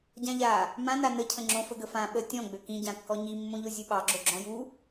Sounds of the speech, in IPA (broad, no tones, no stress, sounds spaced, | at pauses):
ɟ ã ʎ a | m ã n a n ə cʰ ə̃ ŋ͡ǁ õ f ə ɡ ə f ã ɓ ə tʲ ɔ̃ ɡ͡b ø k ĩ ɟ ã kː ɔ ɲ i mː õ ʎ o zʲ ɨ ɓ ɑ ɡ͡ǁ o ɡ͡ǁ ɔ̃ j u